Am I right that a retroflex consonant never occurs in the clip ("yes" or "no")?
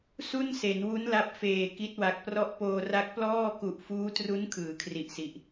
yes